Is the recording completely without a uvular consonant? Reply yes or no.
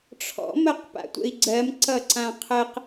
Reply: no